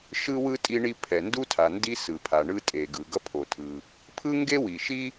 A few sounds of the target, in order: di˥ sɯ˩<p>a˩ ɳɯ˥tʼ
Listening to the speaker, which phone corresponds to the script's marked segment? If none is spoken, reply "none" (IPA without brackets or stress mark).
pʰ